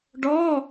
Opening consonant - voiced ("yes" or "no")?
yes